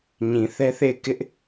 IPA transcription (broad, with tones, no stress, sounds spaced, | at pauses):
ɲ ĩ˨ θ ɛ˦ θ e˦˨ ɪ̯ k ɪ˦ ʔ